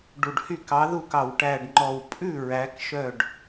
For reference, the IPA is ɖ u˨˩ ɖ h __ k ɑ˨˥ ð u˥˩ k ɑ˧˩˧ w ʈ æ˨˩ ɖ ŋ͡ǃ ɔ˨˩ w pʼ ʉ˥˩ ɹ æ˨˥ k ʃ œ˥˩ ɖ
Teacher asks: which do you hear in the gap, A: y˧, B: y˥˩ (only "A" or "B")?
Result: B